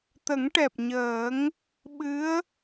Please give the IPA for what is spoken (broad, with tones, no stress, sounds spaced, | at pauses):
t̪ ə˨˩˦ ŋ ʈ ɛ˨˩ p̚ ɲ əː˨˩˦ ŋ | ɓ ɨ˧˥ ə̯